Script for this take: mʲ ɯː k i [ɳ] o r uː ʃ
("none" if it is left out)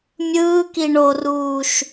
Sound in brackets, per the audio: ɳ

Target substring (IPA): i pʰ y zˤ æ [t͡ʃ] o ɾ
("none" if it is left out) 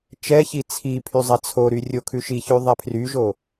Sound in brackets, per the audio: t͡sʰ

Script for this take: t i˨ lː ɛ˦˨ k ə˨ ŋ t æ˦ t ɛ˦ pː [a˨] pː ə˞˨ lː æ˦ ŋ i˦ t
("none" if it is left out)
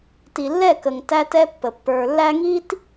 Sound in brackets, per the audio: ə˨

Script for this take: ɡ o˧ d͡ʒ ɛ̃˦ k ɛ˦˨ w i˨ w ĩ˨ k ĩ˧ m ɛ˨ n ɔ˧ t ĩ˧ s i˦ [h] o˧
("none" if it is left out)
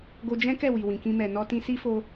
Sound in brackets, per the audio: f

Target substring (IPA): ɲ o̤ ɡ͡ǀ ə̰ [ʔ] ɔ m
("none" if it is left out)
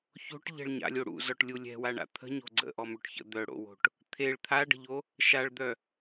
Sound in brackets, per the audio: ʔ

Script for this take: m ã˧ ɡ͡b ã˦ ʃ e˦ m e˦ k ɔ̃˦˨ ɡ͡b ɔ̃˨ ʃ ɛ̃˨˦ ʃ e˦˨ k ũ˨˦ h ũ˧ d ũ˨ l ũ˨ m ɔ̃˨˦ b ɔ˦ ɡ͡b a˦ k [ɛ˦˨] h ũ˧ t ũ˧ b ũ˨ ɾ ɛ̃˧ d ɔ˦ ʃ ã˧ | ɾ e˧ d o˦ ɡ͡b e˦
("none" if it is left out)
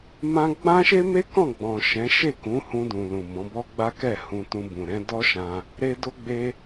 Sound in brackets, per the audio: ɛ˦˨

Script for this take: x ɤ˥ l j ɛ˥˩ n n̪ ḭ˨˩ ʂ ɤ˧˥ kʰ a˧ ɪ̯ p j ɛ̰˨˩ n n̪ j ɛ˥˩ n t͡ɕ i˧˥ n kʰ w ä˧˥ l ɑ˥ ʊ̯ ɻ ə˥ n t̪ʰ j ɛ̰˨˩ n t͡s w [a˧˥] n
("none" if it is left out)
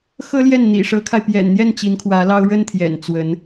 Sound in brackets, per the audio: ə˧˥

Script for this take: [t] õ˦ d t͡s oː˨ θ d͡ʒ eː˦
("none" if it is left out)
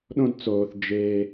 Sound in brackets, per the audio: ɗ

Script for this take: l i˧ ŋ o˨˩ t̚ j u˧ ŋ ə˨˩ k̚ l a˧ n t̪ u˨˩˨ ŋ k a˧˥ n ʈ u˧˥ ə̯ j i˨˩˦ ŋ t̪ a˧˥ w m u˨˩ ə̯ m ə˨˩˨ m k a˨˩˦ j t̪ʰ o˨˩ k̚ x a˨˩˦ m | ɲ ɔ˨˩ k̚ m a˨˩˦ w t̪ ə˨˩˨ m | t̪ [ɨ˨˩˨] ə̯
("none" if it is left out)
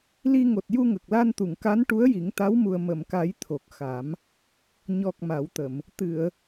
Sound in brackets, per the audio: ɨ˨˩˨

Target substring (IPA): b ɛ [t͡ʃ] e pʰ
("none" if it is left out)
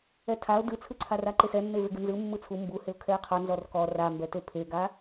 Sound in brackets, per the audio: t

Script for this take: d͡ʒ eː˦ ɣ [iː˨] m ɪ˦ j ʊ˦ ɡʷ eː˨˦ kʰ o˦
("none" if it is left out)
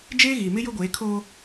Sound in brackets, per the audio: iː˨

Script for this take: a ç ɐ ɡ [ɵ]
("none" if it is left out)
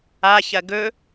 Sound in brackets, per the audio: ɵ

